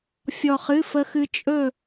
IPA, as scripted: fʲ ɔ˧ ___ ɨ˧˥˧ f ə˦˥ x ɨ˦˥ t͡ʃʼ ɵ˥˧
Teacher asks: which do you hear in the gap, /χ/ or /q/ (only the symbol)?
χ